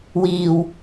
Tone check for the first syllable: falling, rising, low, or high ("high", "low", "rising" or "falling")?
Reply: low